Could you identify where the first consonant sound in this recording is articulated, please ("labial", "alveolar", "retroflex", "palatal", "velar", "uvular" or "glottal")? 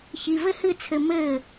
palatal